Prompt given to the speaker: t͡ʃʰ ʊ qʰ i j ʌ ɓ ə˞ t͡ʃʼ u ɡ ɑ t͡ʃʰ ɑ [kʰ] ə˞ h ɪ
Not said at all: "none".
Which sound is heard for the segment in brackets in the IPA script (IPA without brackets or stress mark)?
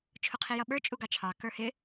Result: k